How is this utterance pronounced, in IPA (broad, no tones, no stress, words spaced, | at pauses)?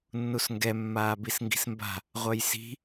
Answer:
nːusŋɡɛ mːaːbisŋɡi̤smba̤ | ʁʷœjsi̤